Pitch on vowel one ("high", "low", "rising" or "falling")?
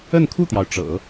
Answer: falling